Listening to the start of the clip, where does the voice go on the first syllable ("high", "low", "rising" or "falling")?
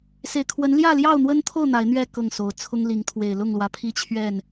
low